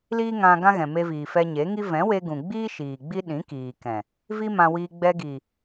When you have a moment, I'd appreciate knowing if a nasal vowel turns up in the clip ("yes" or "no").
yes